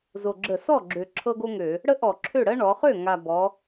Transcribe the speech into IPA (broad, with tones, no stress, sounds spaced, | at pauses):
z o˨˩ ɡ͡ǁ ə˧˩˧ s ɔ˥˩ ɡ͡ǁ ø˨˩ ǁʰ ɤ˥ ɡ o˥ ŋ ø˧˩˧ | ɽ ə˥ ʔ ɔ˧˩˧ ǁʰ ø˥˩ ɽ ɜ˥ ɳ ɔ˩˧ χ ø˥˩ ŋ a˨˩ b ɔ˩˧